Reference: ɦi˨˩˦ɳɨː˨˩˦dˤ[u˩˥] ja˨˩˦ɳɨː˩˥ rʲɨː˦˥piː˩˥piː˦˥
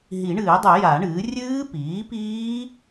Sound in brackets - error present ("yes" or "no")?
yes